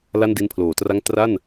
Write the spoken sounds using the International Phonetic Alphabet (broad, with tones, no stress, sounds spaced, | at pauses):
l a˥˩ n d i˦˥ n pʰ l oː˩˦ t r a˥˩ ŋ t r a˥˩ n